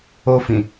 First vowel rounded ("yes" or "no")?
yes